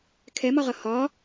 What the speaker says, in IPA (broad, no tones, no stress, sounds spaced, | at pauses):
kʰ ɛ m ɒ ʁ ʌ h ɒ